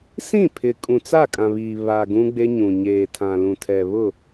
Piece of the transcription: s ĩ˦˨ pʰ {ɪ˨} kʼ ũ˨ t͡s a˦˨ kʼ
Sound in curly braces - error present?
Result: no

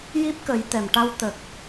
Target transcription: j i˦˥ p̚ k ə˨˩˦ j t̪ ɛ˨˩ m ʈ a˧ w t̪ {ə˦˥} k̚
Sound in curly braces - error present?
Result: yes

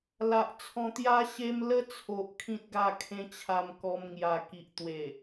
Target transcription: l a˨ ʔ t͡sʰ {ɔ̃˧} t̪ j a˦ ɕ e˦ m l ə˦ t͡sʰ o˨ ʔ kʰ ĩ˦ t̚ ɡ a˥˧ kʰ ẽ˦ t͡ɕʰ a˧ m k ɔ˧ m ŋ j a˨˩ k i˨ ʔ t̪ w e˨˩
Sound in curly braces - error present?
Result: no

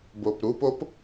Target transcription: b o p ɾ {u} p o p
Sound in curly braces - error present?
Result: no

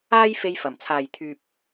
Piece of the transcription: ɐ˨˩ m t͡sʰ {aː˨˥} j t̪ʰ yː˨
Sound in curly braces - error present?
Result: yes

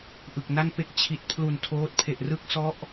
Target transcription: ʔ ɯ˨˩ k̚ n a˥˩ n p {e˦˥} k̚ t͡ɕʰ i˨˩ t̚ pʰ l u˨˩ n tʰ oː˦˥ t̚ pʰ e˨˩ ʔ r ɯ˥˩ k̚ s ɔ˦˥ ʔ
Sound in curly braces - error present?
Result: no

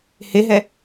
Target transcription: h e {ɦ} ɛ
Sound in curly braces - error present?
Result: no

